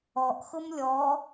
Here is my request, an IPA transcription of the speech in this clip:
ɔ ʔ x ʊ m lʲ ɔ

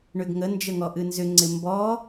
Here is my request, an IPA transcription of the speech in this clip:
ɳ ʏ ɡ ŋ ə n d͡ʒ ə ŋ ɔ ʔ ɨ n z ʏ ŋ͡ǀ ɪ m b ɔ

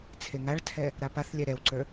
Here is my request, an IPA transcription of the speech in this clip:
t͡sʰ e ŋ a ɭ tʰ ɛ | ɾ a p a θ lʲ ɛ ɾ ɛ w ǀ ə˞

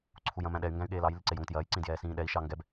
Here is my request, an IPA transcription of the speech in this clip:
ǀʰ u j ɐ̃ m æ̃ ɗ ɛ y̯ ŋ ɡ æ̃ y̯ ɠ eː l ɑ j l i ǀ e j o ŋ t j ɐː j ǀ ĩ d j ɛː s ĩː ɗ ɛ i̯ ʃ ɑ ŋ ɡ ɛ b

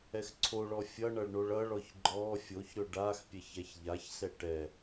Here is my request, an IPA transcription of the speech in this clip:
ɛ x ǀʰ o ɭ ɔ fʲ ʌ ɳ ʌ ɭ ɳ o ɭ ʌ ɭ ɔ ç ɡ͡ǃ ɔ fʲ o ç ɾ ɵ ɖ a x pʲ ɛ ç ɛ ç ʎ a ç s ɛ ʈ ɛ

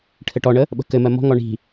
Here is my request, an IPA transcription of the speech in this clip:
ʈʰ ɘ ʈ ɔ ɳ ə | ɓ ə̤ k ɘ m ɜ m ɔ̤ ŋ ɔ ɳ i̤

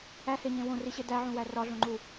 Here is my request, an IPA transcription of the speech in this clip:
æ h e ɲ ẽ w õ r i ɕ e d æ ʕ ũ w æ r ɒ ɮ õ ŋ͡ǃ u

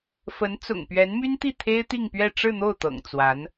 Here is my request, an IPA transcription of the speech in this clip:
f ə˧˥ n t͡s ʊ̰˨˩ ŋ p ɥ ɛ˧˥ n m y˥ n t̪ i˥˩ t̪ʰ e˥ ɪ̯ t̪ i˥˧ ŋ p ɥ ɛ˥˧ ʈ͡ʂ ɻ̩˥˧ n̪ o˥˩ ʊ̯ t̪ ɤ̰˨˩ ŋ t͡s w a˧˥ n

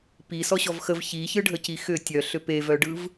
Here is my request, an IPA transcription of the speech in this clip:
p i s ɔ ɕ ɔ v x ə v ç i ç ɯ ɖʱ ə c i x ʏ tʲ œ ɬ ʏ p e v œ ɖ ɯ v

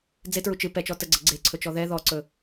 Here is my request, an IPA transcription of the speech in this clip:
d͡z e t ɹ u t͡ʃ ɨ p ɛ t͡ʃ ɔ t ə ɡ͡ǀ ə ɡ͡ǀ e ǀʰ ɵ t͡ʃ ɔ ð ɛ ð ɔ ǀ ɵ

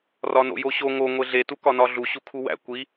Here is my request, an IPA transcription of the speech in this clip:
r ɒ n o̰ j o ɕ o ŋ o ŋʷ e ɮ e t u k ɒ n ɒ ɮ u ɕ u kʰ u w æ̰ kʷ i

